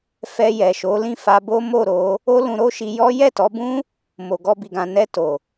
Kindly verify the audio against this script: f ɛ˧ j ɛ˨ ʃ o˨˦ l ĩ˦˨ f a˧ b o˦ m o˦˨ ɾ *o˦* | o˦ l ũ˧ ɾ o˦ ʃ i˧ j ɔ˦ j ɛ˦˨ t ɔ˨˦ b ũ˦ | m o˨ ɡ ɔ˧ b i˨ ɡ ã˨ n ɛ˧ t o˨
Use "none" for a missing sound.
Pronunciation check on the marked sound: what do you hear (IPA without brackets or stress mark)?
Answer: o˨˦